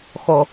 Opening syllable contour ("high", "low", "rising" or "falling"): low